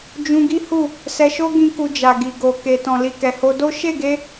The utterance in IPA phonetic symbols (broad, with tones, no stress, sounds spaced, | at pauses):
d͡ʒ ũ˧ ɡ i˦ h u˦˨ | s ɛ˧ ʃ o˦ ɡ ĩ˦ k u˧ d͡ʒ a˨ ɡ i˨ ɡ o˨ k e˨ t ɔ̃˨ l i˨ k ɛ˨ h o˧ d o˦ ʃ e˦˨ ɡ e˧